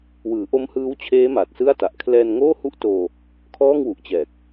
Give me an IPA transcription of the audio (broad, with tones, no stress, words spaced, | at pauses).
wɯː˩˦ʔo˦˥mhɯː˦˥wt͡ɕʰeː˦˥ ma˨˩t̚sɯ˥˩a̯ta˨˩ʔ kʰlɛː˧nŋoː˥˩hu˥˩ʔtoː˧ | kʰɔː˥˩ŋwu˨˩ʔt͡ɕɛː˨˩k̚